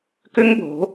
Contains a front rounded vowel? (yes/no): yes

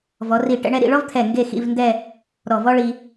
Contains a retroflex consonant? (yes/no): yes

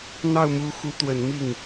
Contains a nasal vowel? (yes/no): no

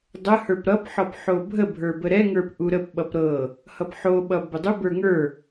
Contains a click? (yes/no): no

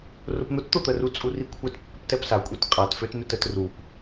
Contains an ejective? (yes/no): yes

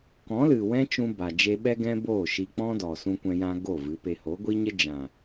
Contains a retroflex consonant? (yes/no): no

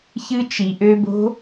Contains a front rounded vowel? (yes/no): yes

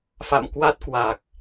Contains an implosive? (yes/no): no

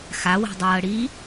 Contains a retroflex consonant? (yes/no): yes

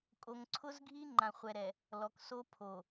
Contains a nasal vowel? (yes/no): yes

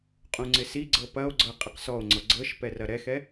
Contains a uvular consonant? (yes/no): yes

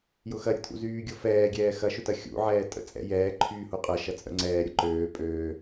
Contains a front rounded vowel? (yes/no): yes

